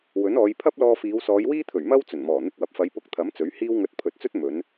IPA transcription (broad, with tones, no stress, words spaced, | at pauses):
wɵ˨˥nɔː˨˧j pʰɐ˥p̚lɔː˧fiː˨˧w sɔː˨˧jwiː˥t̪ʰɵ˨˩ɥ mɐ˥w t͡sɵ˨˩nmɔː˨˩ n̪ɪ˧k̚wɐ˨p̚fɐ˨˧j pʊ˧k̚t̪ʰɐ˨˥m t͡sɵ˨˥ɥhiː˥wŋɵ˧t̚ pʰɵ˨t̚t͡sɵ˥t̚ mɵ˨˧n